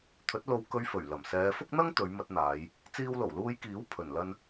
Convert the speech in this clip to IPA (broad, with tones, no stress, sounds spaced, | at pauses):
t̪ʰ ɵ˨˥ t̚ l o˧ w k ɵ˧ ɥ f ɵ˨˩ ɥ l ɐ˨˩ m s ɛː˨˧ f ʊ˥ k̚ n̪ ɐ˥ ŋ t̪ ɵ˨˧ ɥ m ɐ˧ t̚ n̪ aː˨˧ j | t͡s iː˧ w l o˨˩ w l uː˧ j k iː˨˥ w pʰ ɵ˨˩ n l ɐ˥ n